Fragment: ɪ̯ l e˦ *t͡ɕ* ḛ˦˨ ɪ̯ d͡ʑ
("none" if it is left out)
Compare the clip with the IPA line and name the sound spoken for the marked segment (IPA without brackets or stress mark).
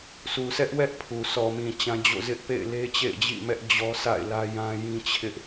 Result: t͡ɕ